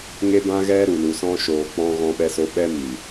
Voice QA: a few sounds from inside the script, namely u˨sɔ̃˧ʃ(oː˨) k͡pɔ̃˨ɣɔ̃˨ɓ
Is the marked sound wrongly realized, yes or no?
no